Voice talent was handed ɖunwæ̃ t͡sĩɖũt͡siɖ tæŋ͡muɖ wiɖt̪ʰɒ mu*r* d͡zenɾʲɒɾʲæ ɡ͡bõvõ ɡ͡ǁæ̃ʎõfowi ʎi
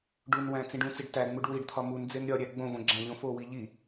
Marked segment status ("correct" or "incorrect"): incorrect